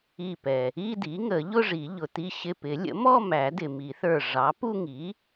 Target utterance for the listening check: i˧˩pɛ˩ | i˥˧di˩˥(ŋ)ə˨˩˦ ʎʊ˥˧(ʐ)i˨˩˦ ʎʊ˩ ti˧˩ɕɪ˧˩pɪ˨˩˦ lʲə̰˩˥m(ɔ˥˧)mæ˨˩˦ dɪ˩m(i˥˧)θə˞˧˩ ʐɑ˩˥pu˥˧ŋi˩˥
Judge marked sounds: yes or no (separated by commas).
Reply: yes, yes, yes, no